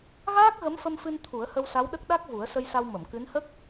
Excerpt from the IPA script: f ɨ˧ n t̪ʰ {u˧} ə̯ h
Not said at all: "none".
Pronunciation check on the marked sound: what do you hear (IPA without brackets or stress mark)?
u˨˩˦